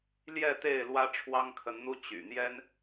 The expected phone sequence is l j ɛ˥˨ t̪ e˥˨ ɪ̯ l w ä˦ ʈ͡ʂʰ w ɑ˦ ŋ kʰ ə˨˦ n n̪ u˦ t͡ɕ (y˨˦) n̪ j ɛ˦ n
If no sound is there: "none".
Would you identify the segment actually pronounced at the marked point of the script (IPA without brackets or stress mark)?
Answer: y̰˨˩